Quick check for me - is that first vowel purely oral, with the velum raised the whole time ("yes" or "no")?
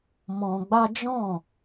no